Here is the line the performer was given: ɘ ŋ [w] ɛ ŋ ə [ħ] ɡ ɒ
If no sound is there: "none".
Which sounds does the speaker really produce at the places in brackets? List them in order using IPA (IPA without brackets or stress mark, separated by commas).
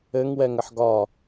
w, ħ